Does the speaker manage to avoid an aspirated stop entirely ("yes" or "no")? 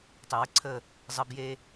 no